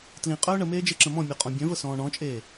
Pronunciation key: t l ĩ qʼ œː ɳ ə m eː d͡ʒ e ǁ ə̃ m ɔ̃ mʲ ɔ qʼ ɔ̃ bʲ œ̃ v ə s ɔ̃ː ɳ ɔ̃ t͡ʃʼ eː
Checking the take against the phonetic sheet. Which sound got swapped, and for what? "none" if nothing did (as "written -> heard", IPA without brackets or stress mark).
none